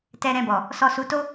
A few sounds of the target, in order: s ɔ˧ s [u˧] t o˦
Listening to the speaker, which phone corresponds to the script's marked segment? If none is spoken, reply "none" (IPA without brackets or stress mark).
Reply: u˧